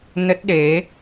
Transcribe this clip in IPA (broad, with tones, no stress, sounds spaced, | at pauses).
n ə˦˥ t̚ ɗ e˨˦